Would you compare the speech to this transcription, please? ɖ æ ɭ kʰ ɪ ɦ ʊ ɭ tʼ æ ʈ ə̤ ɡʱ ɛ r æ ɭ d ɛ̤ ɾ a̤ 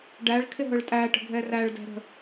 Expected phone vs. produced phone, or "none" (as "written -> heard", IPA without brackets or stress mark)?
a̤ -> ə̤